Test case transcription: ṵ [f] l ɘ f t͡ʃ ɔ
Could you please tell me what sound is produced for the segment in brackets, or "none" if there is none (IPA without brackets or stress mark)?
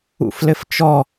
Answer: f